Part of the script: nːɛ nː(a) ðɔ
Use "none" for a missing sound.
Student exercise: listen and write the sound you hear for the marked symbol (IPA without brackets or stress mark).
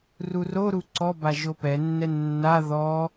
a